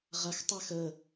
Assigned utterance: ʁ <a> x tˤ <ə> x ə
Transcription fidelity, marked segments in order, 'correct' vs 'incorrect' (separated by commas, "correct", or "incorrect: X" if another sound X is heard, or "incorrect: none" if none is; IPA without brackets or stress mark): incorrect: ɐ, incorrect: a